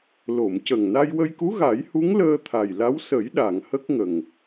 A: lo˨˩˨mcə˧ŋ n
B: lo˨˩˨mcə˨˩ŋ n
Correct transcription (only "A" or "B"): B